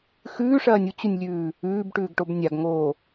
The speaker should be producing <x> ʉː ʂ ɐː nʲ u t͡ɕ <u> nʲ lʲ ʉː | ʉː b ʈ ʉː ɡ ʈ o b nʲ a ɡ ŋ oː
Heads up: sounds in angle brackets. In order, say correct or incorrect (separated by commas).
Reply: correct, correct